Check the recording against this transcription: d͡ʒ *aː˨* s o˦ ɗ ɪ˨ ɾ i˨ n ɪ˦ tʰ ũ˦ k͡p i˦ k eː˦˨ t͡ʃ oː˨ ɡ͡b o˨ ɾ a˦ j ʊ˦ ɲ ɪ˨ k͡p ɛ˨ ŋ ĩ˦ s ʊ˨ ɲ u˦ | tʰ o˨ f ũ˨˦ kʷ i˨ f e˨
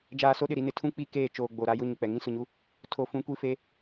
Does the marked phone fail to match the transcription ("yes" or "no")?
no